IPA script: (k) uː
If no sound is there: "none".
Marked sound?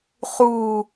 χ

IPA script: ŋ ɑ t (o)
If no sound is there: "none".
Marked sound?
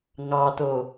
o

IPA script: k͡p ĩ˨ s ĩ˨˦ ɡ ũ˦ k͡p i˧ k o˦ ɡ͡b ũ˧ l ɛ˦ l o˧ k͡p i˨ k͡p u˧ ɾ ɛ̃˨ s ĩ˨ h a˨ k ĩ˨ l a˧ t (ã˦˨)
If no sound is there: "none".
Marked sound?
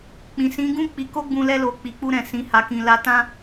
ã˦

